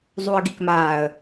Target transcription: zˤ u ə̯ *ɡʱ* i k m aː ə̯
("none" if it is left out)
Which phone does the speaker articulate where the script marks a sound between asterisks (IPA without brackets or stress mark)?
ɡ